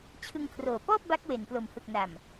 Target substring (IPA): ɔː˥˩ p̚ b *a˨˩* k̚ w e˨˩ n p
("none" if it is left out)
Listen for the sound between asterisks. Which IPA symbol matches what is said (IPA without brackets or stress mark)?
a˦˥